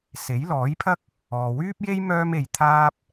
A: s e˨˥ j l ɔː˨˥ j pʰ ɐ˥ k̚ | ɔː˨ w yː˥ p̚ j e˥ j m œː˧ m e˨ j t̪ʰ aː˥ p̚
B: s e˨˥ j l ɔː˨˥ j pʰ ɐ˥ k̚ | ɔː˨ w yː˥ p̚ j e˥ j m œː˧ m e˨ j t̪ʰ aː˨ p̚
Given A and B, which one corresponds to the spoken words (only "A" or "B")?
A